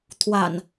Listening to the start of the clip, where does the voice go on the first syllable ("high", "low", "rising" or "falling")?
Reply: low